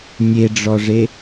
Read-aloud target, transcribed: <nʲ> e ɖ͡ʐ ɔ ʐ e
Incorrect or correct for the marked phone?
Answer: correct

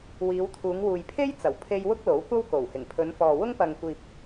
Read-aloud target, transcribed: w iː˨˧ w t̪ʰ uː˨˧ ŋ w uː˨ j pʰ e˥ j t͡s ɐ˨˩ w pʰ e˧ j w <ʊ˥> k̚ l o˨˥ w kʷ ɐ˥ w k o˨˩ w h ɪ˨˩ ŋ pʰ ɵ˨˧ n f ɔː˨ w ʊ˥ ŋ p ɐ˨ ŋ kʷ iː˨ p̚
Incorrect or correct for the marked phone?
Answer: correct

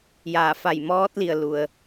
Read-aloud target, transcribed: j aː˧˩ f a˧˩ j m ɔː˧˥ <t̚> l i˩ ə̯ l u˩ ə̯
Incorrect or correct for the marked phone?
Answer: correct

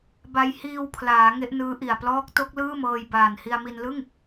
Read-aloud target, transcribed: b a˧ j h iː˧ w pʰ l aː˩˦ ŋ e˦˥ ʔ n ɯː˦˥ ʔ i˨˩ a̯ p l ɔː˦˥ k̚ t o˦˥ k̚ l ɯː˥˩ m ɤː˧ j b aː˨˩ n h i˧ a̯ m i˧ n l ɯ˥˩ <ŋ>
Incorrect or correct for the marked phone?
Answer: correct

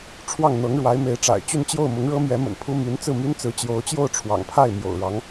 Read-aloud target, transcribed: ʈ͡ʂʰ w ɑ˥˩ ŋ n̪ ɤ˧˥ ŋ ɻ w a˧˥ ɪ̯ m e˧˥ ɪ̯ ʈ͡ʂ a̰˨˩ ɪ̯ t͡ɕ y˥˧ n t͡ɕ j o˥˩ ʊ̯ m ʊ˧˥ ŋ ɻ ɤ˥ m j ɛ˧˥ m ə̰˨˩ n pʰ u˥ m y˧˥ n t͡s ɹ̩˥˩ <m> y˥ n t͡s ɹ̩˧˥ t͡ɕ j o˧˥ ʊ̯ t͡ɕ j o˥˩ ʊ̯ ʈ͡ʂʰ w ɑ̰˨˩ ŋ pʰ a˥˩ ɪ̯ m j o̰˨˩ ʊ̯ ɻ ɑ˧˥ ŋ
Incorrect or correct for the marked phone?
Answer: correct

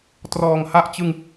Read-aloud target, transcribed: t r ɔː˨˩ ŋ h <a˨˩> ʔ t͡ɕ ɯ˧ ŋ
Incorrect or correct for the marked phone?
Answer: incorrect: a˥˩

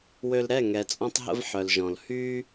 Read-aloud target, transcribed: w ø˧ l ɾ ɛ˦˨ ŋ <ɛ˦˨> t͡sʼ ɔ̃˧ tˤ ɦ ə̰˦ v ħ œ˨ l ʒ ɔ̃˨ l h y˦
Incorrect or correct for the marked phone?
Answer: incorrect: ɛ˨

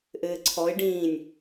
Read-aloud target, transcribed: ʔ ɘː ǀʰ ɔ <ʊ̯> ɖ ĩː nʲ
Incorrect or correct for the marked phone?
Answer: incorrect: ɪ̯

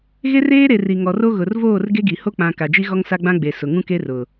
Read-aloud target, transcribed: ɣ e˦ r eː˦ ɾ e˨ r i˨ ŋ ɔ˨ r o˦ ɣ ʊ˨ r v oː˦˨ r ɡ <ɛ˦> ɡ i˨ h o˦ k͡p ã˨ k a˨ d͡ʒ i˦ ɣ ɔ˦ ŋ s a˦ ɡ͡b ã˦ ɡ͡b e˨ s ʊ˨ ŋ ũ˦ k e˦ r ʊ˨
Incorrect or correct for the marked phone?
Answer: incorrect: e˦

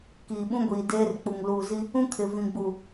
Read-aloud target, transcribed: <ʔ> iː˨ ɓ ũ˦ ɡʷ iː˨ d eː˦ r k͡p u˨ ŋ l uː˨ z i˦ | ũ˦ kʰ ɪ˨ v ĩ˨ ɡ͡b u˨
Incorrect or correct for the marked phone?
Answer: incorrect: k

